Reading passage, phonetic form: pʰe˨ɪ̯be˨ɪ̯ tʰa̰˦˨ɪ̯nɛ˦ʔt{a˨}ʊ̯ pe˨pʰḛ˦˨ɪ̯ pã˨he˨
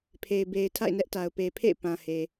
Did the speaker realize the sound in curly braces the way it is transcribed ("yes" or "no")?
yes